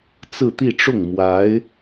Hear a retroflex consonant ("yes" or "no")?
yes